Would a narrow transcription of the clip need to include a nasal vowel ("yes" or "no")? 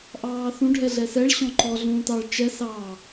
yes